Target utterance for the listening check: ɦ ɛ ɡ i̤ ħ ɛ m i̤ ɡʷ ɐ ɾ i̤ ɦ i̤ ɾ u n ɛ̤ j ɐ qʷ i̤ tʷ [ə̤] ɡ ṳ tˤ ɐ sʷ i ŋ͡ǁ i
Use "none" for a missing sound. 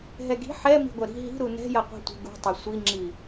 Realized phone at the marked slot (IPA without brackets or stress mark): ə̤